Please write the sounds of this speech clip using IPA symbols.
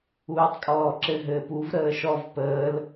uː tˤ kʼ ɔː ǁ ɘ ɦ ɘː p u v ɾ əː ʃ ɔ v p əː l

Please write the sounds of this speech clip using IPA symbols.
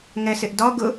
ŋ ɛ s ɪ ʔ d ɒ ɡ ʊ

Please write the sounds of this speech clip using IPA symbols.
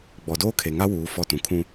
ɡ͡b ɔ˨ d oː˦ kʰ e˨ ŋ a˦ w uː˨˦ f ɔ˦˨ t ũ˨ kʰ ũ˦

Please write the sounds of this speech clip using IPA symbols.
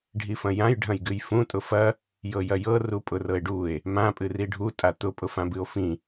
ɖʱ i f ɐ̃ j ã j ɖʱ ɐ̃ j ɡ ɨ j f ũ tʼ ʊ f ɐ | j ɤ j ɐ j ɤ r u pʼ ʊ r ɤ e̯ ɖ u e̯ | m ã pʼ ɨ r i ɖʱ u tʼ a t̪ ʊ pʼ ʊ f ã b ɨ o̯ f ĩ

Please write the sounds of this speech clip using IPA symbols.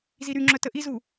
z i ɾ y ŋ͡ǁ œ t ə ʔ i z u

